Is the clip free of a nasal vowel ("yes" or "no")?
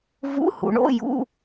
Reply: yes